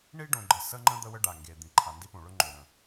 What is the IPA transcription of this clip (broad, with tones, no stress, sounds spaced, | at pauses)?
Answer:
ɳ i˦ ɖ õ˨ ɡ͡ǃ ə˨ s ə˦ ŋ͡ǃ ə̃˦ d̪ ə˦ w ə˦ ɖ a˨ ŋ ɡ e˨ d̪ ĩ˨ ǃʰ a˨ n d i˦ p õ˨ ɭ ɵ˦ ŋ͡ǃ o˨ ɾ ə̃˨